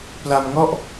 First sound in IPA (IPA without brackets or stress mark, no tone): p